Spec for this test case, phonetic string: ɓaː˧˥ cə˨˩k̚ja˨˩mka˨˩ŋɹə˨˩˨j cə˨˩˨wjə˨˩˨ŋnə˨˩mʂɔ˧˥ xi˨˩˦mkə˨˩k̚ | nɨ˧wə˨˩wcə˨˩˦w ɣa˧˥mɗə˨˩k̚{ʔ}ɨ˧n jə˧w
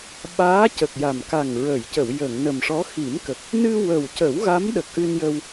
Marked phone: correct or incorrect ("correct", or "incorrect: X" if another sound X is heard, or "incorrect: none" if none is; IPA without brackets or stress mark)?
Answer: correct